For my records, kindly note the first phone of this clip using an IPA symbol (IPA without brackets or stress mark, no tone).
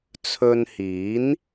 t͡sʰ